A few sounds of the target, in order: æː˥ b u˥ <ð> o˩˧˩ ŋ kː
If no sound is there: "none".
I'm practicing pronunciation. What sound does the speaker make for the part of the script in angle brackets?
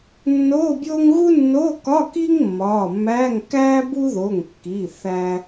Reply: ð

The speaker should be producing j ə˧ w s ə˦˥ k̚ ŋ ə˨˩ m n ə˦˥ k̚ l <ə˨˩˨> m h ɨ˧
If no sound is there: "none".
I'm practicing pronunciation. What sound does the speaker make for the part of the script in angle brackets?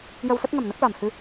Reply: a˨˩˨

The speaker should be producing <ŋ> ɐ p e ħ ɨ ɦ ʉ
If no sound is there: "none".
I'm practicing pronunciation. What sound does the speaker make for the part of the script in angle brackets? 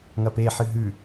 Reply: ŋ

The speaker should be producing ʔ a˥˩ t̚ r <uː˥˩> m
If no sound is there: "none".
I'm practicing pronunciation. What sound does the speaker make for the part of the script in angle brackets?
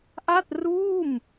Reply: uː˥˩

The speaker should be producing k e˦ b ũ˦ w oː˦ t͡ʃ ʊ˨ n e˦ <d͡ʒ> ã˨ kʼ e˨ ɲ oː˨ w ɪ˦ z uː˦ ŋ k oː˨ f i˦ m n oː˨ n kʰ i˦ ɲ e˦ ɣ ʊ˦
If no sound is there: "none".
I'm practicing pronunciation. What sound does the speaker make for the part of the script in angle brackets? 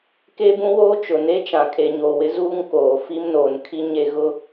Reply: t͡ʃ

